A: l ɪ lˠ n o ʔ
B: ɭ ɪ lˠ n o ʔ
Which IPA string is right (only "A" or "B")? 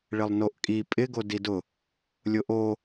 B